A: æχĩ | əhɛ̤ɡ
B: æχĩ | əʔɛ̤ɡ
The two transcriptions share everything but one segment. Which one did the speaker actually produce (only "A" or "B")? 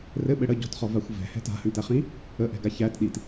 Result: B